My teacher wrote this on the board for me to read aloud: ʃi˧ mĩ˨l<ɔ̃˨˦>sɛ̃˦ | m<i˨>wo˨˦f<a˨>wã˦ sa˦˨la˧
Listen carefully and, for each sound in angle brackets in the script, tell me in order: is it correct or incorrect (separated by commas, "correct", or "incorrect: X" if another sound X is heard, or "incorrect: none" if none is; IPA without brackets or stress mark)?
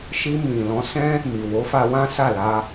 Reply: correct, correct, incorrect: a˧